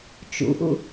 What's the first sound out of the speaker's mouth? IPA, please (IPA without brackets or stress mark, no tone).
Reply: t͡ʃ